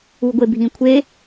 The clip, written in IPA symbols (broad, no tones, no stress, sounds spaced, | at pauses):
u ɡʷ e bʱ ĩ kʷʰ e